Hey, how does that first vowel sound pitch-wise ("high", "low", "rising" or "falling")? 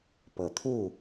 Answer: low